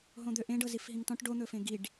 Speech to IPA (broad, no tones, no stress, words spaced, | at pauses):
ɦõd̪øʔẽɖɤ zifɦĩŋtɔ̃ʈ ɖon̪ɵfẽ ɡiɖ